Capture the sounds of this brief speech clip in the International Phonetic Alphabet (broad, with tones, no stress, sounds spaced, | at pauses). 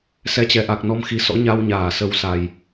s ɛ˧ t͡ɕ ɛ˨˦ ʔ a˨˩ k̚ n ɔ˧ m x i˨˦ s ɔ̰˧˥ ɲ a˧ w ɲ aː˧˩ s ə˨˦ w s a˨˩ j